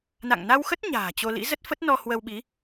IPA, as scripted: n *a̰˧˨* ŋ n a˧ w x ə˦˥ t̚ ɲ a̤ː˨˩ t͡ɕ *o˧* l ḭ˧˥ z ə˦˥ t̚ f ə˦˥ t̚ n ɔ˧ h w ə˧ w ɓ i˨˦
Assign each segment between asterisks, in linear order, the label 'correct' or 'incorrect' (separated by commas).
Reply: correct, correct